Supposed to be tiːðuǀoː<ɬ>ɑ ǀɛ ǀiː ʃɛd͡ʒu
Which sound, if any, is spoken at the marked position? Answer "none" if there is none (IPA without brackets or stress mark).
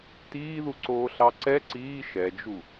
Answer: ɬ